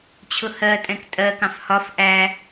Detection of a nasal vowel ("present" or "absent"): present